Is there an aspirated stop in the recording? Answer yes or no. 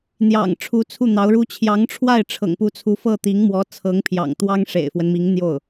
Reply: yes